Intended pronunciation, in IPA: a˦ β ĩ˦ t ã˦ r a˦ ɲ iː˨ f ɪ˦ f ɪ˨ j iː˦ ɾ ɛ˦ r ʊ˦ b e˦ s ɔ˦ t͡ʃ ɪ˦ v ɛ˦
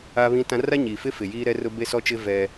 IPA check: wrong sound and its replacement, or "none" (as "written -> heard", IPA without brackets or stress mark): none